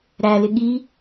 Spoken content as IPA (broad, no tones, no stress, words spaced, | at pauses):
ɾælɪ ɠi